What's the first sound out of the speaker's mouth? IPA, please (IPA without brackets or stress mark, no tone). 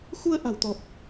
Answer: x